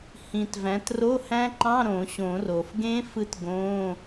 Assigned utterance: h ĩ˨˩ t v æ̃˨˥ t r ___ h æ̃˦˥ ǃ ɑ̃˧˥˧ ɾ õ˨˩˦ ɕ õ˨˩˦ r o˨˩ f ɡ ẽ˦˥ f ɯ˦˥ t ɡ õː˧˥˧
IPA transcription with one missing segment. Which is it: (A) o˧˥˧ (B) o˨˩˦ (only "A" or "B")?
A